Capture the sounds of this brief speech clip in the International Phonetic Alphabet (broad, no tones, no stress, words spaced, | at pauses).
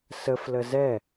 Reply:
səflə zɛ